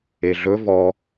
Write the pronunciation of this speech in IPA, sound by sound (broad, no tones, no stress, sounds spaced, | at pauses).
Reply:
e ɮ ɵ v ɔ